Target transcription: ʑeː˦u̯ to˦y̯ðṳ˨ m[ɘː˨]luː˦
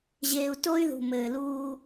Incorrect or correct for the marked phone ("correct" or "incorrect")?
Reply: correct